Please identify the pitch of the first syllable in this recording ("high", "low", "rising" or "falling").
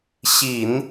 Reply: low